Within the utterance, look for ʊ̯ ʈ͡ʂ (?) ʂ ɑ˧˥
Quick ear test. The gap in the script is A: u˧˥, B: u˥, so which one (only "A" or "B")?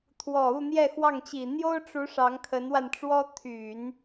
A